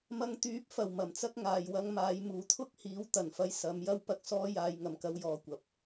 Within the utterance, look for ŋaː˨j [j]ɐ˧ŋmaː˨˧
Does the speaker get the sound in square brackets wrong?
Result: yes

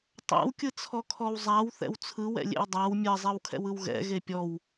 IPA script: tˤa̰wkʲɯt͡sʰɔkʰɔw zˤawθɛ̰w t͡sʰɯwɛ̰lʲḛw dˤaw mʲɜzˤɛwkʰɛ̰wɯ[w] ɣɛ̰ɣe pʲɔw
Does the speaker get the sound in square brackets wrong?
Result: no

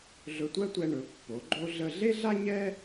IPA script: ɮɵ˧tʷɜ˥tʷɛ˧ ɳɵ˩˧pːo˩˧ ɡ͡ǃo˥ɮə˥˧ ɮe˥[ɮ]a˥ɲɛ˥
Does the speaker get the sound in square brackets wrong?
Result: no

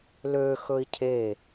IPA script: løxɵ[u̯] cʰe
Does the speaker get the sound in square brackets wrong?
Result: yes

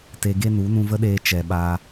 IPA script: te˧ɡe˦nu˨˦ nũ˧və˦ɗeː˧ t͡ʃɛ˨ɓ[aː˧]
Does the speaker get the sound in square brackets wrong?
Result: no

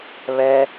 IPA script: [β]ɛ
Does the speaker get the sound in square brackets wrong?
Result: no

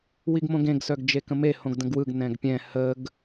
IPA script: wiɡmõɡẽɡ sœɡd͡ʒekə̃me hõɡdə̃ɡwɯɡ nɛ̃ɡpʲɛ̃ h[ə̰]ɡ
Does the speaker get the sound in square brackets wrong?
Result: yes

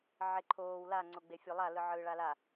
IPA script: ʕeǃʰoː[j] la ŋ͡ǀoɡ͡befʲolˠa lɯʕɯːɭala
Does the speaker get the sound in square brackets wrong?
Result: yes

